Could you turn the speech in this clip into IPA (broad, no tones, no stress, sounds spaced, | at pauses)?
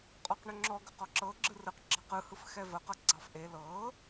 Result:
qʼ ɔ q ɳ ʏ ŋ͡ǁ ɔ ɡ ʏ q ɔ ǁ ɤ ɡ͡ǁ ɯ r ɯ q ɡ͡ǁ ɑ q ɯ h ɯ f x ɛ v ə q ɤ ɡ͡ǀ ɑ f ʔ e l ɤ